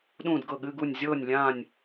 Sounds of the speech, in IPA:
ɗũː˥˨dɡɤ˥˨ɠɨ˧˥˧ɡu˥˨nʲ zʲɤː˥˨nʲ lʲãː˥˨nʲ

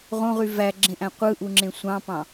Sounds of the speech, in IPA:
ʁõʁy væɡ͡ǁẽʔæ̃ qʷɯʔuŋ͡ǁẽ sʷɑ̃pɑ̃

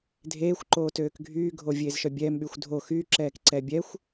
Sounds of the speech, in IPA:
dʱeːxʷ ǃoːtøːkɡʱyː ɡʱovʲeːzʃœbʲɛːm ɓyxʷdʱo xy ǁɛːkǀɛbʲɛxʷ

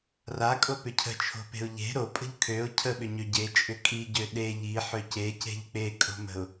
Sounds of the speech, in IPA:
rakʼopʏ cʰə̤t͡ʃʰo̤pe̤ʊ̯ ʎe̤ ɾopʼə̤ʎ kʰøʊ̯ cʰəɓʏɲø ɟet͡ʃʼʏ kʼiɟø ɗe ʎiħø cece̤ʎ k͡pekʼo̤mə̤ʊ̯

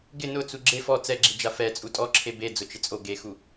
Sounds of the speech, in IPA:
ɡɪ nʊ t͡suɡ͡ǁe fɔ t͡sɛɡ͡ǁid͡ʒa fɛt͡sʼu tʼɔ ǁʰebe d͡zʊt͡ʃɪt͡sʼo ɡexu

